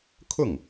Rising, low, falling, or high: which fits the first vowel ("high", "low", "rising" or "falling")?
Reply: falling